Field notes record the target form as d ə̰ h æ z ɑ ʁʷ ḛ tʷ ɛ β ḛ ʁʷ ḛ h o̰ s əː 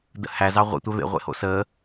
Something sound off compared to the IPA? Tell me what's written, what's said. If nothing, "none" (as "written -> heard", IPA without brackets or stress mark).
none